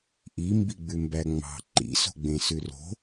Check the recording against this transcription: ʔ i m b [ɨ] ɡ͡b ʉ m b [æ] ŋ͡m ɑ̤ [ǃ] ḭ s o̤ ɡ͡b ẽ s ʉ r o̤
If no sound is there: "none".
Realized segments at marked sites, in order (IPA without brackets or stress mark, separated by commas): i, æ, ǃ